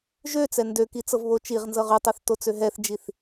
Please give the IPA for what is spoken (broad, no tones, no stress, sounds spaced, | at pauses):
ʒ ø t͡s ɛ n d ø k i t͡s ɤ v β o t͡ʃ i ʁ n z ɤ ʁ y tˤ ɛ θ t o t͡s ø ɦ ɛ θ d͡ʒ i θ